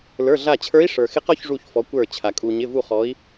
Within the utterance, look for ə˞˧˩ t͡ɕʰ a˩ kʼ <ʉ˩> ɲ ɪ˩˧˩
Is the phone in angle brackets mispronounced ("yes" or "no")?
yes